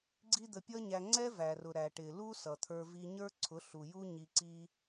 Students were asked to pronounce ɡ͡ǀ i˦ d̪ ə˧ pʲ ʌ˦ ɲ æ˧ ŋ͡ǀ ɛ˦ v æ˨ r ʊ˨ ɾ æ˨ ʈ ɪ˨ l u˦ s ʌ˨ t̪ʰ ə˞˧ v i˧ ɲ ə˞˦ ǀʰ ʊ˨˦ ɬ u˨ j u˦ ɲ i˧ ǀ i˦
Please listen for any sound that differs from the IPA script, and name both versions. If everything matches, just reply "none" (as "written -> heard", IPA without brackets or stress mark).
none